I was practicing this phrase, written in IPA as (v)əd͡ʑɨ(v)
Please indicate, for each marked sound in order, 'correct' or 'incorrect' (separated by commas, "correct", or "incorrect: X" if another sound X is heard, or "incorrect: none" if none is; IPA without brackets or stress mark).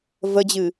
correct, incorrect: none